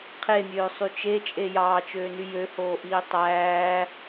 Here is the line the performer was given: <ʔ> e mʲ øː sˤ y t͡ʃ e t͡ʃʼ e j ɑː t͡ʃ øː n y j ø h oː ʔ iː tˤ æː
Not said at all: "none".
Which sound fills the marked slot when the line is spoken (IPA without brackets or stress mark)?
qʰ